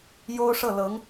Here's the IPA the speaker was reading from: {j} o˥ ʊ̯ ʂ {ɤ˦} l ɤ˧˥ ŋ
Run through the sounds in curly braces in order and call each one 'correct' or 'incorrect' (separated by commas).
correct, incorrect